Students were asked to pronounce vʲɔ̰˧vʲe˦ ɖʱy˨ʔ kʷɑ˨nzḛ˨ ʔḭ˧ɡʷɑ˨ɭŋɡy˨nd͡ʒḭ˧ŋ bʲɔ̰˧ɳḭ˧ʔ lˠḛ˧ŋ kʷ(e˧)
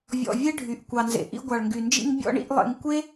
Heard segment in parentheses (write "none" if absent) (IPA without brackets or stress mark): e˦